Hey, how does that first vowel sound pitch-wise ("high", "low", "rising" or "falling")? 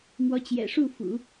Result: rising